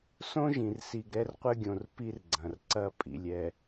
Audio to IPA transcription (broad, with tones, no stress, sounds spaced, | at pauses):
s õ˦ ʒ ĩ˨ r s i˨ ɡ ɾ ɛ˦ r qʷ ɘ˦ ɡʲ õ˨ r p i˦ r ɡ͡ǀ ɐ̃˨ r ǀ ɐ˦ pʼ ḭ˨ lʲ ɛ˨